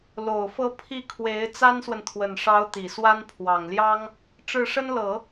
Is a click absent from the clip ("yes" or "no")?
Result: yes